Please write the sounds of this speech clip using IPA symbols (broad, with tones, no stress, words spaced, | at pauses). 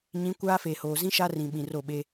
ɲĩ˨˦ kʷaː˦feː˨hoː˨ zĩ˦ ʃa˦rĩ˨ ɓĩ˨ro˦˨ɓe˦